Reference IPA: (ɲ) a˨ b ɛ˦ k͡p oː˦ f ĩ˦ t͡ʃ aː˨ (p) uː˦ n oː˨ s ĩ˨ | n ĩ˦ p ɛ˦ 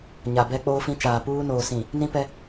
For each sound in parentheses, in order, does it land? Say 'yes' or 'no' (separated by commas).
yes, yes